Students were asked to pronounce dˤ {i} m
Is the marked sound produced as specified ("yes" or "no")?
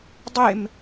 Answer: no